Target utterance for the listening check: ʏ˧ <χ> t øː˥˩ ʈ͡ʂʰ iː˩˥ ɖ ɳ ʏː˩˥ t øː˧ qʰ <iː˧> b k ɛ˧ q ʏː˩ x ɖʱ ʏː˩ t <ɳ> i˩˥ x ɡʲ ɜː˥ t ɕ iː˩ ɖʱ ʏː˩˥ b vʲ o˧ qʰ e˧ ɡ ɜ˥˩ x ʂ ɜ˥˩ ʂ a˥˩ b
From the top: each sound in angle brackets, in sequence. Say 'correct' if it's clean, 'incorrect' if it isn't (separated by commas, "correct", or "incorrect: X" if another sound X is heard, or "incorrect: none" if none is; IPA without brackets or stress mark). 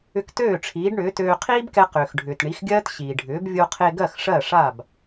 incorrect: k, incorrect: iː˥, correct